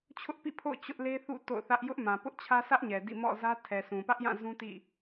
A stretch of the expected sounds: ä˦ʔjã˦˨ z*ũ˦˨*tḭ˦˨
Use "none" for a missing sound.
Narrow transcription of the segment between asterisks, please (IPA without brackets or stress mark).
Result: ũ˦